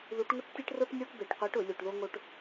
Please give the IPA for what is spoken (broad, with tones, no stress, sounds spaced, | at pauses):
ð u˧˥ ʈ ŋ ʊ˥ ʈ tʲ e˥ ʈ r o˥ ʈ nʲ o˥ ʈ b e˧˩˧ ʈ qʷ e˧˥ ʈ ʊ˧˩˧ lʲ u˧˩˧ ʈ ð o˥ ŋ o˥ ʈ